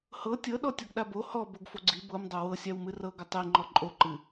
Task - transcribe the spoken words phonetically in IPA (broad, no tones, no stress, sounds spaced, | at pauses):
h ɤ tʲ ɤ ɗ ɔ tʲ ɔ ɡ ɗ a b o h ɔ b o ɡ f o ɡ͡ǀ i b ɤ m dˤ o w ɤ sʲ a w m ɨ r ɤ ɡ ʏ tˤ i ŋ͡ǃ ɔ ǃʼ o ǃ ɨ